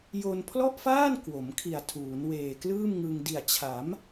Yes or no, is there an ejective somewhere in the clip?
no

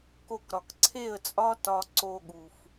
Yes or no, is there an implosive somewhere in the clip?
yes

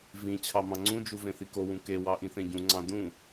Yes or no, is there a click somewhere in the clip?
yes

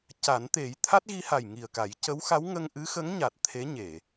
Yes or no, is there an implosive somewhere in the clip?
no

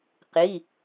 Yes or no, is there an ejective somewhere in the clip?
no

